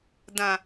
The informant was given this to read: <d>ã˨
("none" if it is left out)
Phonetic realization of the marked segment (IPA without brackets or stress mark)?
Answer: d